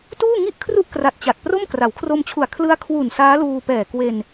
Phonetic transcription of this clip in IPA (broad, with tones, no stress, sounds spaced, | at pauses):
t uː˥˩ ŋ i˥˩ ʔ kʰ r u˥˩ ʔ k r a˨˩ t̚ t͡ɕ a˨˩ t̚ p r o˥˩ m k r a˩˦ w kʰ r o˧ m t͡ɕʰ u˨˩ a̯ kʰ l ɯ˦˥ a̯ kʰ w u˨˩ n s aː˦˥ l uː˧ p ɛː˨˩ k w e˧ n